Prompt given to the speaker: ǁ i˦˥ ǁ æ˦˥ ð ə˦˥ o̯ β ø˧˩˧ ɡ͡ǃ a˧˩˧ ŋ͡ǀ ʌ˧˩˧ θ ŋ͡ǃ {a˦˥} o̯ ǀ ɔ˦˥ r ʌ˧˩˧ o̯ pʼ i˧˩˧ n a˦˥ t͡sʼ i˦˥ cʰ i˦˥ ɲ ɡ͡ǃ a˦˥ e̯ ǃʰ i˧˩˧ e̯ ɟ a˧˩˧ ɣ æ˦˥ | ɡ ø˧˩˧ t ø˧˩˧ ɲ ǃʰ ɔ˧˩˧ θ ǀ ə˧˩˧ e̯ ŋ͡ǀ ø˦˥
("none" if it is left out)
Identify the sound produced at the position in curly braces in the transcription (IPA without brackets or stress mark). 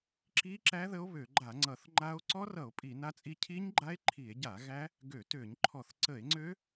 a˦˥